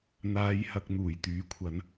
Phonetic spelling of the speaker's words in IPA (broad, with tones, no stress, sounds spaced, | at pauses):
n̪ aː˧ j h ɐ˧ k̚ n̪ uː˨˩ j t̪ yː˨˥ kʷʰ ɐ˨˥ n